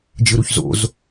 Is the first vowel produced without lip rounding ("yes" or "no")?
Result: yes